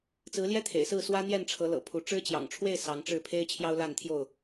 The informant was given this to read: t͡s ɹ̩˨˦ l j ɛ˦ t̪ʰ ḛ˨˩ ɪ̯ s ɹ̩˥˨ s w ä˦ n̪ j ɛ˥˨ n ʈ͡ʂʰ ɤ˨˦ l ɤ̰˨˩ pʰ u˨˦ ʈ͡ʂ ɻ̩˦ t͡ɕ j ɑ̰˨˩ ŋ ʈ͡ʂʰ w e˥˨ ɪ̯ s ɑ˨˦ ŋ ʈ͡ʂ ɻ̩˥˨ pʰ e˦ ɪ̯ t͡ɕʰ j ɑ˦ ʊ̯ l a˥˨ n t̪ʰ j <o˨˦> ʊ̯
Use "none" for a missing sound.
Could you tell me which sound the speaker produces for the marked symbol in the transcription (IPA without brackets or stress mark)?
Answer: o˥˨